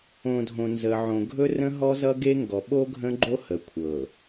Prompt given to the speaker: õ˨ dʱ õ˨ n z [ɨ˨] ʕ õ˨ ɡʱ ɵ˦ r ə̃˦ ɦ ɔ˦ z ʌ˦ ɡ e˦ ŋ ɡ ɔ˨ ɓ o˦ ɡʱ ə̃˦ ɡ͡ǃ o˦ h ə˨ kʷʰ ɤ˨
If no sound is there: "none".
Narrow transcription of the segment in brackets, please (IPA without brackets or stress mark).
ə˨